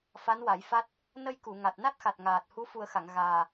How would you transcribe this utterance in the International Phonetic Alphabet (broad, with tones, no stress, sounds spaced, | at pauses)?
f a˧˥ n w a˨˩˦ j f a˦˥ t̚ | n ə˧ j k u˨˩˨ ŋ a˨˩ t̚ n a˦˥ t̚ x a˨˩ t̚ ŋ aː˨˩ t̚ h u˧˥ f u˨˩ ə̯ x a˨˩˨ ŋ ɣ aː˨˩